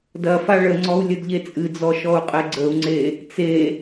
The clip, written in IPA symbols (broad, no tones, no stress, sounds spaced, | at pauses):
d ɐ f a ɭ ə ŋ͡ǀ ɔ u̯ lʲ ə d ʎ e t͡sʼ ɨ d͡z ɔ ʃ ɔ u̯ qʼ e ɡ͡ǀ ə u̯ ŋ͡ǀ e | t͡s e